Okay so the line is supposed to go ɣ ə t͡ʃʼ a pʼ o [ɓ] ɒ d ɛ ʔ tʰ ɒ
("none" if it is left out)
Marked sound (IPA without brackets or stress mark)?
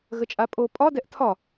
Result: pʼ